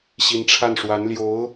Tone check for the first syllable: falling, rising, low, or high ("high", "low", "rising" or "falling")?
rising